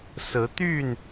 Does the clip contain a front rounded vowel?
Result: yes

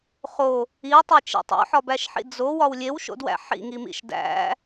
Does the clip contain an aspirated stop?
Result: no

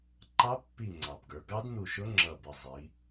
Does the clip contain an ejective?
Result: no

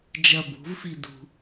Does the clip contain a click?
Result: no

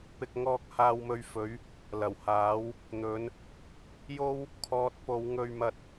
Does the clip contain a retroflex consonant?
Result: no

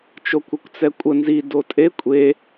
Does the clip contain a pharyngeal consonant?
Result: no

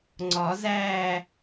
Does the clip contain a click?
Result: yes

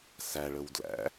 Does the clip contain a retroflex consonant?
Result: yes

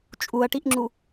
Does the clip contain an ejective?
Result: yes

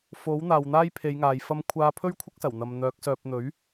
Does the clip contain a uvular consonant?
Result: no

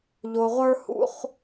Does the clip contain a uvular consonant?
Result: yes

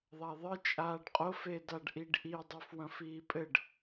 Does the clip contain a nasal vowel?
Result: yes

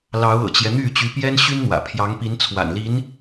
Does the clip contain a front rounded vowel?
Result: yes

